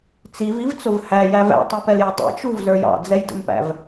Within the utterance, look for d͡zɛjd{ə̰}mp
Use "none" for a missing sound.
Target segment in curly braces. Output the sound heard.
ə̰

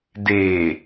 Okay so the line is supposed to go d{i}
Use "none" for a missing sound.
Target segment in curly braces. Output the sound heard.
e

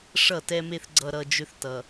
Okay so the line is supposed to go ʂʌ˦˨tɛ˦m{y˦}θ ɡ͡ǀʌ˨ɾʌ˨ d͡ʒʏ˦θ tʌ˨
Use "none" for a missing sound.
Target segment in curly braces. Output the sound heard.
e˦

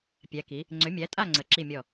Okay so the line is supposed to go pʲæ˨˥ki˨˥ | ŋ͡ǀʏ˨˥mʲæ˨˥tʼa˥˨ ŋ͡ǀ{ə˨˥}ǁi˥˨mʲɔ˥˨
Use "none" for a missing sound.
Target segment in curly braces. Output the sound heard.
ə˨˥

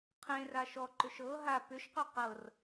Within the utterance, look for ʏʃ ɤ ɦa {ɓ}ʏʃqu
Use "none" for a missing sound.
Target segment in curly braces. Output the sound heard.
p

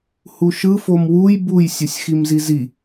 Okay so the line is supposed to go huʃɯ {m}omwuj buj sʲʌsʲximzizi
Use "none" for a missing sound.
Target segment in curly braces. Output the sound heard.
f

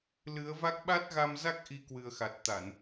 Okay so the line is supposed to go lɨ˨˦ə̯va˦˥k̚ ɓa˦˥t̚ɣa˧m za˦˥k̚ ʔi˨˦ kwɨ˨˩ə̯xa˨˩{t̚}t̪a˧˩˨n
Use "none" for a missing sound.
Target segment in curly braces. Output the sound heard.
t̚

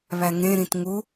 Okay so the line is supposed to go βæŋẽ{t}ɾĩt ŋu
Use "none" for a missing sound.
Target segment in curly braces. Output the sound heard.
none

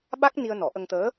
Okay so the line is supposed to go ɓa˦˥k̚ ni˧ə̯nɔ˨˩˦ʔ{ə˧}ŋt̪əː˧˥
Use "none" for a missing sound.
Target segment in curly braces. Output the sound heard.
ə˧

